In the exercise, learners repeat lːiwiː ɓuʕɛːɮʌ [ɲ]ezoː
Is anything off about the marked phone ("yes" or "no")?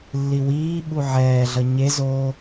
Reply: no